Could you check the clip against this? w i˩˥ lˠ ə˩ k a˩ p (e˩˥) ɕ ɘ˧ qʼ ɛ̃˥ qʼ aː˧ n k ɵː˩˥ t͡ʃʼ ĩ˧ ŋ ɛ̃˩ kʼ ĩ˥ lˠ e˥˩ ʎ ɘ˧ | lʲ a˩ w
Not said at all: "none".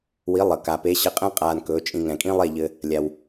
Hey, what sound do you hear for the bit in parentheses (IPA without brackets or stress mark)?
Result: e˩˥